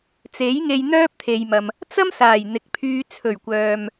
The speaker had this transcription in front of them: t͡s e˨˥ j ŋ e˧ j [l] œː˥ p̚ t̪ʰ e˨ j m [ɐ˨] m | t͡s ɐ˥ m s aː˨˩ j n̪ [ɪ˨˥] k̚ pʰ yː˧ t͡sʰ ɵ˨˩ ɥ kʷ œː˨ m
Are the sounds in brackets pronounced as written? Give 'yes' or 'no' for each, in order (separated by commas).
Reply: no, yes, yes